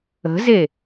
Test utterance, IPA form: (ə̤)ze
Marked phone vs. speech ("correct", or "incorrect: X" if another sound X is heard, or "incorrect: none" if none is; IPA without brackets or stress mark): correct